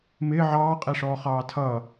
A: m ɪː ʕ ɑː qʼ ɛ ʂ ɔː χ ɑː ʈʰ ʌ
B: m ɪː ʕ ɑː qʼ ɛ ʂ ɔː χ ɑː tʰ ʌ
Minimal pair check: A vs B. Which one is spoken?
B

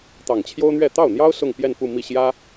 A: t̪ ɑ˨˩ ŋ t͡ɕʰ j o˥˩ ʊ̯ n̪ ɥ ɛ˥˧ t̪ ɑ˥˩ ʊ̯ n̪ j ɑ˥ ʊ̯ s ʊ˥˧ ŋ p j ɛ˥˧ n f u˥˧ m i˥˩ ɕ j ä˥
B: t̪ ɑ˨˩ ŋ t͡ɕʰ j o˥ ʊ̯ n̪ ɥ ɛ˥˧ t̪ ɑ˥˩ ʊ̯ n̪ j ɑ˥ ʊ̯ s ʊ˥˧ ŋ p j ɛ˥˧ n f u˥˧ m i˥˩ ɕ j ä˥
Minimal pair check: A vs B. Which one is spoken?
B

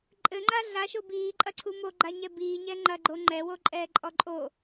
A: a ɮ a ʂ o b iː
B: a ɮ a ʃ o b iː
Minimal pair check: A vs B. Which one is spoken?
B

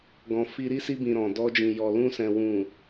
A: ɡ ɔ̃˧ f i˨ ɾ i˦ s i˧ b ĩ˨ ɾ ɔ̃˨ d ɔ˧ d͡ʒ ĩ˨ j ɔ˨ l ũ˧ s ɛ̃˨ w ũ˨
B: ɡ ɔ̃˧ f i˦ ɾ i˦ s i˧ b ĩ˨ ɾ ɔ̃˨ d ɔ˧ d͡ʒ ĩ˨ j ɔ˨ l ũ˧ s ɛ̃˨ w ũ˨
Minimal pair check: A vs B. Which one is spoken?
B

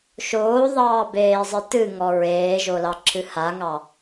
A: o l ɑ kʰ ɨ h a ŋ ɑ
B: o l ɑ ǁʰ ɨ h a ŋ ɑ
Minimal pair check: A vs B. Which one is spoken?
B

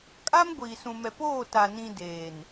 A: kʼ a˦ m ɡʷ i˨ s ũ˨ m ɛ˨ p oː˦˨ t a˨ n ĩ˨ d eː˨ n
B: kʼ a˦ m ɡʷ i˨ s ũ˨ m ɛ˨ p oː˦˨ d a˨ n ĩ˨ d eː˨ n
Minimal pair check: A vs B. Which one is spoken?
A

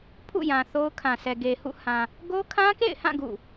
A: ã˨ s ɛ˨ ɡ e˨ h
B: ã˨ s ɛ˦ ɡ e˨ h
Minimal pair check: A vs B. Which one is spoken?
A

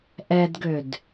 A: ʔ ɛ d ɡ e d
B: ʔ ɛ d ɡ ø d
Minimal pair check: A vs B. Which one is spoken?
B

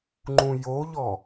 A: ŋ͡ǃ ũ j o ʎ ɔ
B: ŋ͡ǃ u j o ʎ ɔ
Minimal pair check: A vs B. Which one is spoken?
A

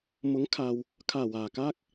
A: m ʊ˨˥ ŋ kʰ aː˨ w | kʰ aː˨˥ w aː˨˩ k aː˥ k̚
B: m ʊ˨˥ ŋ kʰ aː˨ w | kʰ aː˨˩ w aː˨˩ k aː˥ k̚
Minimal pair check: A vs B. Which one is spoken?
B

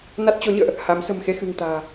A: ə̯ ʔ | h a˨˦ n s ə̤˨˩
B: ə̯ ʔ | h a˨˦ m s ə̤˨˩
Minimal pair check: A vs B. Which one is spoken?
B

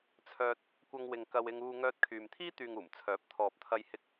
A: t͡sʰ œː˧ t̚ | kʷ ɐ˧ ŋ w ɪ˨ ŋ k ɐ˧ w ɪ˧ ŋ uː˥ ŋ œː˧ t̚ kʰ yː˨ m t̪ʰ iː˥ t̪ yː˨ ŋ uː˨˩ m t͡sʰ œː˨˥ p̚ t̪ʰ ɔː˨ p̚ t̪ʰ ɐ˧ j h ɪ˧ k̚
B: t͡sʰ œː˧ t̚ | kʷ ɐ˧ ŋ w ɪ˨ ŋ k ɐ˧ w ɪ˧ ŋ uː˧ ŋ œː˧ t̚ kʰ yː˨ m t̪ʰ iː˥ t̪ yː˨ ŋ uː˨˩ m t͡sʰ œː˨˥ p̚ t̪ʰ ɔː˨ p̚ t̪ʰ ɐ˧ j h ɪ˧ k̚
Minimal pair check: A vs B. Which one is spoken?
B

